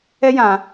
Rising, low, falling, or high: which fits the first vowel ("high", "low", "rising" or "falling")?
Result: high